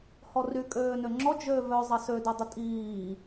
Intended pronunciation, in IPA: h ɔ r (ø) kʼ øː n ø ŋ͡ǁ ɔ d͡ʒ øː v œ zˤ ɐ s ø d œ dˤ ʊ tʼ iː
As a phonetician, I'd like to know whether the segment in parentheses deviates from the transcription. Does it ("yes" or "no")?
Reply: yes